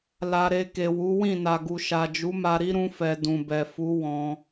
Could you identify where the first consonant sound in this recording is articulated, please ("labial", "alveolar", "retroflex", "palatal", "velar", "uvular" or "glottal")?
alveolar